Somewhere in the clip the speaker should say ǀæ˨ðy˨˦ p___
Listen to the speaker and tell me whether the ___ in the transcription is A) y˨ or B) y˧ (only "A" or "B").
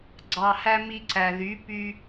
B